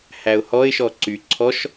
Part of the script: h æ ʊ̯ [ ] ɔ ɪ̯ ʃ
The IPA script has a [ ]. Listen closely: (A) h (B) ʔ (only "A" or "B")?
A